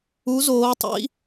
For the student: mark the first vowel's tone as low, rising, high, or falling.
rising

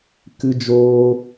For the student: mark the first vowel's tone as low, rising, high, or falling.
high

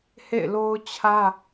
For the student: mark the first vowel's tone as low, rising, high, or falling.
falling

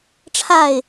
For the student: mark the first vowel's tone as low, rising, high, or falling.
falling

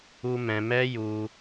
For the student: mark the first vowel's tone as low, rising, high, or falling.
high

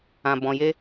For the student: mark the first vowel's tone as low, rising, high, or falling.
low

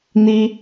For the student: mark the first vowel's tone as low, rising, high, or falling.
high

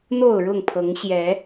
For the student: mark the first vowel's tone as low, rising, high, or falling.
falling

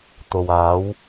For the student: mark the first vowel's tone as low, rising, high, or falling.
low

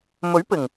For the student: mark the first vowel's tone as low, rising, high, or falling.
rising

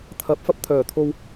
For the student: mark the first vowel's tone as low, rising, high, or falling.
rising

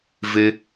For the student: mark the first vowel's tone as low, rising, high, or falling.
high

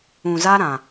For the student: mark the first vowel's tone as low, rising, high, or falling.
low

